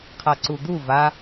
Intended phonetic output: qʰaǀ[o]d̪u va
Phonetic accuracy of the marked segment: incorrect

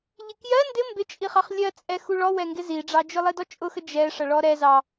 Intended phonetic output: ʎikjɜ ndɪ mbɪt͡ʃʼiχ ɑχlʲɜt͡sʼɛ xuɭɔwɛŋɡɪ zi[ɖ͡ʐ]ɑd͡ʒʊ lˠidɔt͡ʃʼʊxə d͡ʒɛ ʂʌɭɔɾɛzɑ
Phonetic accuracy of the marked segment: correct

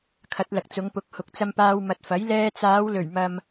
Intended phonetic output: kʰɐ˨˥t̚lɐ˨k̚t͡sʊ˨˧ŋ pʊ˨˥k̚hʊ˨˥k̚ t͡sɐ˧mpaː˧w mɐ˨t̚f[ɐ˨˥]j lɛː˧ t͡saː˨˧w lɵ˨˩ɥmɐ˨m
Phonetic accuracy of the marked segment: correct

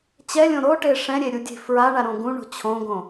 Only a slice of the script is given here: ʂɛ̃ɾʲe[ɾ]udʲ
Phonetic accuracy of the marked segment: incorrect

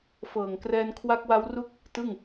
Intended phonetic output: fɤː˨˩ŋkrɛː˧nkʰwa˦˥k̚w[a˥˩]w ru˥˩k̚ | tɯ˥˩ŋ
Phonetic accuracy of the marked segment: incorrect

